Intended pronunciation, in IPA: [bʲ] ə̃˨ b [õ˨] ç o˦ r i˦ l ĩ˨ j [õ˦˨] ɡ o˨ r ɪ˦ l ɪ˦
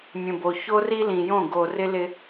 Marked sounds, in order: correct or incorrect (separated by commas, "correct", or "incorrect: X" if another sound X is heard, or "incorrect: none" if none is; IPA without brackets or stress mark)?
incorrect: mʲ, incorrect: o˨, correct